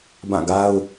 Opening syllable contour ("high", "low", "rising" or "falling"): falling